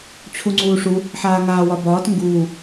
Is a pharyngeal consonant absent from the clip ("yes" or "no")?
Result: no